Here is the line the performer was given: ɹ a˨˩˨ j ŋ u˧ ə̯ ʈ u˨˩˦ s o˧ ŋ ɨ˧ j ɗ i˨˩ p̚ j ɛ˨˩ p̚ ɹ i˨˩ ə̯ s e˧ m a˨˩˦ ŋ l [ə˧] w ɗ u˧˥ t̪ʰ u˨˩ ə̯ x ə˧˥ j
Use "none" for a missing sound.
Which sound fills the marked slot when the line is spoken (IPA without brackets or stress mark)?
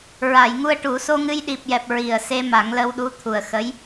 ə˧